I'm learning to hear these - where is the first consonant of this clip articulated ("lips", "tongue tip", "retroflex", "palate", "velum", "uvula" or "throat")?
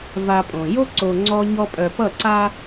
lips